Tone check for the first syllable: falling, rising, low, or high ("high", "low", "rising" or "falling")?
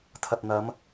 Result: low